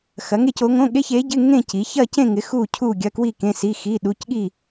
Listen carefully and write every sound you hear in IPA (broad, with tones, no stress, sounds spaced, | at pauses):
x ɐ˨˥ ŋ e˥˧ c o˨˥ ŋ õ˧˥˧ ɠ e˧˥˧ ç e˨˥ ɟ ɪ˧˥˧ ŋ ẽ˥˧ c i˨˥ ç ɐ˥˧ c ẽ˥˧ ŋ ɪ˨˥ x u˥˧ cʰ u˥˧ ɡʲ ɐ˧˥˧ k w i˥˧ k ẽ˧˥˧ s i˧˥˧ x i˧˥˧ ɗ u˧˥˧ c ɠ i˥˧